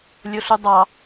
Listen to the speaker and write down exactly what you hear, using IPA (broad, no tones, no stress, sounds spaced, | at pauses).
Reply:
lʲ o ɬ u dˤ ɑ